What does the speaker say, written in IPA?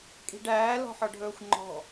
kʼ i̤ ɖ æː l ɔ̤ ħ ɔ ɖʱ ɵː xʷ ŋ͡ǃ ɔ̤

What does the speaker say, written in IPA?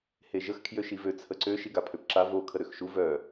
h e ʒ ə x kʰ j ø ʃ i v ø t͡sʰ ə ǀ ø ʃ i ɡ a pʰ ø p ǁ a v o kʰ ə ɾ ø x ʃ u v œ

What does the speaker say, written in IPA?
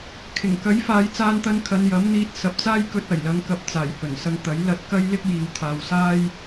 kʰ ɪ˨˩ ŋ k ɐ˨˥ j f aː˨˧ j t͡s aː˧ n t̪ ɐ˧ n kʰ ɐ˨˧ n j ɐ˨˥ m n̪ iː˧ t̚ s ɐ˨ p̚ t͡s aː˥ j k ɵ˧ t̚ ɐ˨˩ j l ɐ˨˧ ŋ k ɐ˨ p̚ t͡s aː˨˩ j h ɵ˨˩ n s ɐ˧ ŋ t̪ ɐ˨˥ j l ɐ˧ t̚ k ɐ˥ j l ɪ˥ k̚ j iː˨˧ w t̪ʰ aː˨ w s aː˥ j

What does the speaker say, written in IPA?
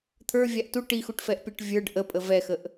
t̪ʰ ə˞ vʲ a ʔ t u ʈ i x u ʈ f ɛ ʔ pʲ a ʈ vʲ ə˞ ɖ ʔ ə pʼ ə v ɛ x ə ʔ

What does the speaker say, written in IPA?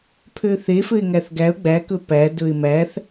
pʰ ø θ e f ɘ ɪ̯ ŋ æ θ ɡ æ ʊ̯ ɡ͡b æ k ɵ p æ d ɵ ɪ̯ m æ θ

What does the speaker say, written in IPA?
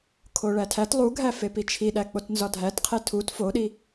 kʰ o ɭ æ tʰ æ t lˠ u ɡʱ æ f e p i t͡ʃʰ i ɗ æ k͡p o t n z ɒ dʱ æ t qʰ e tʰ u t f o ɗ i

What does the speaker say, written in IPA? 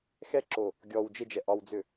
x ɛ ǁ o | ɡʲ ɔ w d͡ʒ ɪ d͡ʒ ɛ ʔ ɒ w d͡z ʏ

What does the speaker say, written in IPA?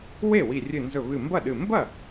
w e˥˩ w i˧˩ rʲ ɨ˧˩ n z ɵ˧˩ β ɨ˧˩ m b ɐ˥˩ ɗ ɨ˧˩ m b ɐ˥˩

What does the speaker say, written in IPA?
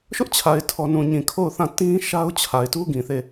ʃ ʊ˦ ʔ t͡ɕʰ a˨ ɪ̯ tʰ ɔ˨ n ũ˨ ɲ ĩ˨ kʰ o˦˨ ʊ̯ θ ã˦˨ t ĩ˦ ʃ a˦ ʊ̯ t͡ɕʰ a˨ ɪ̯ t u˦ ɡ ĩ˨ θ e˦˨

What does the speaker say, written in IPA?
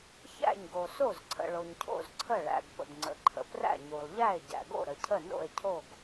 ç æ̰˥˩ ɲ ɡ o˩ s o˥˩ z ǀʰ ə̰˩ ɭ o˩ ɲ cʰ o̰˥˩ z ǀʰ ə˥˩ ɭ æ̰˩ ɡ p ə̰˩ ɡ ŋ͡ǀ ə̰˩ ǃʰ ə̰˩ p r æ̰˥˩ ɲ u˩ lˠ ʎ æ˥˩ e̯ ɟ æ̰˩ ɡ o̰˥˩ ɾ ə˩ cʰ ə˥˩ n o̰˥˩ e̯ cʰ o˥˩ ɡ

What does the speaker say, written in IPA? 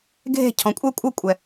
ɡʱ e̤˦˨ cʰ ɔ̃˨ kʷʼ ɛ˦ kʷʼ ɤ˦ kʷʼ ɛ˨

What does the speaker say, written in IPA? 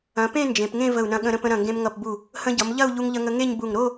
ɐ̃˩˧ p ẽ˥˧ n d͡ʒ ẽ˩˧ p ŋ ẽ˥˧ v ə˧˩ u̯ n ɐ̃˧ ɠ ə̃˧ ɾ ə̃˧ p ə̃˧ ɾ ɐ̃˧˩ ŋ ɡ ẽ˧ m ŋ ʌ˧˩ p b u˧˩ | h ə̃˧ ɟ ʌ˩˧ m ʎ ɐ˥˧ u̯ ʎ u˧ ŋ ʎ ə˧ ŋ ə˧ ŋ e˥˧ ɲ b u˧˩ ŋ ɾ o˥˧

